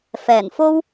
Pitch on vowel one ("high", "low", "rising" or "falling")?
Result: low